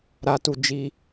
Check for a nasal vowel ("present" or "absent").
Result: absent